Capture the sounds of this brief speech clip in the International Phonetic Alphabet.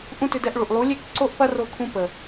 ʔ ũ˦ t ʏ˧ d ɛ˧ ʔ ɭ u˨ ʔ lˠ u˨˦ lʲ e˦ k ǀ o˦ ʔ p ɐ˦ r o˧ kʰ ũ˧ p ə˨

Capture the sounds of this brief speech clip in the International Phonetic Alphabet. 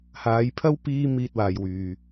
h aː˨˧ j pʰ ɐ˥ w p iː˥ m iː˧ t̚ w aː˨ j w yː˨

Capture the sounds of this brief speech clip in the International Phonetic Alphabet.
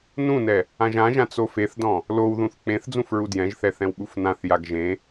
n ũ n ɛ | ã ʒ ã ʒ ã t͡s o f e θ d ɔ̃ | l o w ð ũ θ k͡p ẽ θ d͡z ũ f ɹ u d j ɛ̃ ʒ θ ɛ θ ɛ̃ w ɓ u f n ã θ j a ɡ ʒ ẽ

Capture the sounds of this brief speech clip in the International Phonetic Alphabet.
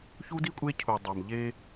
ç u˦ d i˦ kʷʼ e˦ cʰ u˨ dˤ a˨ m ʎ e˦

